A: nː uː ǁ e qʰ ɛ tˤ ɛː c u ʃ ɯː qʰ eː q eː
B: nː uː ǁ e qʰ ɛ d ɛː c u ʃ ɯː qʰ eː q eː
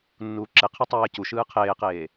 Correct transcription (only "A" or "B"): A